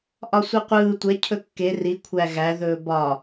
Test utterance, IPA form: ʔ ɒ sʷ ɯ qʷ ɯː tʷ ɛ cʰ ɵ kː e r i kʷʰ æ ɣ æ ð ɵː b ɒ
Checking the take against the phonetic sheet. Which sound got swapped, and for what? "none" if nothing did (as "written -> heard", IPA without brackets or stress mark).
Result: none